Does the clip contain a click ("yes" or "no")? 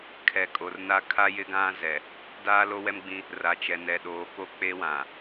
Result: no